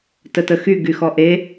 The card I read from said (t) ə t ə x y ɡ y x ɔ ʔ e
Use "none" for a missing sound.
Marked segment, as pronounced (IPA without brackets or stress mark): t